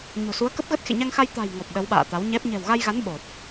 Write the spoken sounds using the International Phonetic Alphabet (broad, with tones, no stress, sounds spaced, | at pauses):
ɲ o̤˨˩ s u˨˦ ə̯ k ə˦˥ p̚ ɣ ə˦˥ t̚ x ḛ˧˨ ɲ a˧ ŋ x a˧ j t̪ a̤˨˩ j ŋ ɔ˨˩ p̚ ɗ ə˨˦ w ɓ a̰ː˧˨ t̪ a˨˦ w ɲ ɛ˦˥ p̚ ɲ ɛ̤˨˩ w ɣ a˧ j ɣ a˨˦ n ɓ o˨˩ t̚